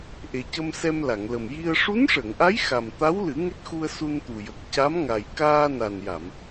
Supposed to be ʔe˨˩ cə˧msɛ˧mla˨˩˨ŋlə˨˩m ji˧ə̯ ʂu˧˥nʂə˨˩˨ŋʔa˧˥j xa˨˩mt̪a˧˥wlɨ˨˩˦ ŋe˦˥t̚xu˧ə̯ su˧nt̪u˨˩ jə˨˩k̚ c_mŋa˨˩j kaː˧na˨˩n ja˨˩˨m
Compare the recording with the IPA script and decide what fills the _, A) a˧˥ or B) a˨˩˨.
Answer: A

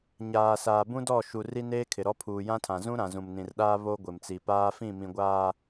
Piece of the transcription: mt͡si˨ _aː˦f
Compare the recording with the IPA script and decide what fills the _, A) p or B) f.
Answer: A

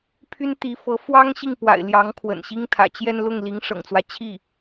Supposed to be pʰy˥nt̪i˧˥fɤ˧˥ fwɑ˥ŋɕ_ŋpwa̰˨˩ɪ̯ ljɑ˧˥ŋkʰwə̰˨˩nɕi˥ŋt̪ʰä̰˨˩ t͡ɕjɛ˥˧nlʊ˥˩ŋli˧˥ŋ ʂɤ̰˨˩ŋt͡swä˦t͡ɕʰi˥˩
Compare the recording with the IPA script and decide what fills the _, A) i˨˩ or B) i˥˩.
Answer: B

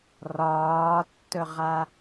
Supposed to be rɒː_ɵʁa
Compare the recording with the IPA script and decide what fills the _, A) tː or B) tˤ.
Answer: A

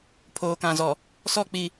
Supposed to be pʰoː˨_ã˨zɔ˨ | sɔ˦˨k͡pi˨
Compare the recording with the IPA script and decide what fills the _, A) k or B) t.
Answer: A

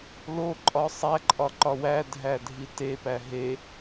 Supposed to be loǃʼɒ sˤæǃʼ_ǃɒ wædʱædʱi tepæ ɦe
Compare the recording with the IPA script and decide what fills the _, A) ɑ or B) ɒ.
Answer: B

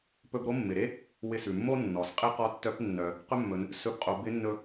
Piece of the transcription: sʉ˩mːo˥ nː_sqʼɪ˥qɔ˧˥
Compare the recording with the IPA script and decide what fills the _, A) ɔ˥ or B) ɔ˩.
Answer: B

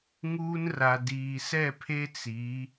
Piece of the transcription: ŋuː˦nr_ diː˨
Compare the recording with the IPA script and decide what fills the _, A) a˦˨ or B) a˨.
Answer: B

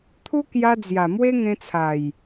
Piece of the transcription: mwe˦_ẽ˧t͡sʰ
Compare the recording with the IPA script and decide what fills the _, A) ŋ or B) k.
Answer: A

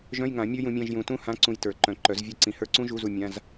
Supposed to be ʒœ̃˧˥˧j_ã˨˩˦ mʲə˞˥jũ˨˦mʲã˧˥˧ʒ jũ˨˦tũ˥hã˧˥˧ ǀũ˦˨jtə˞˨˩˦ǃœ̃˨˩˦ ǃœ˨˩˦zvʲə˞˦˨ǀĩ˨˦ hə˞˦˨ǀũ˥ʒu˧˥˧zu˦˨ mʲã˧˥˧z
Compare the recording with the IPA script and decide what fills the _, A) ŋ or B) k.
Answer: A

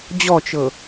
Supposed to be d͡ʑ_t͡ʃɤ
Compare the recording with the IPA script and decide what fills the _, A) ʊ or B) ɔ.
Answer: B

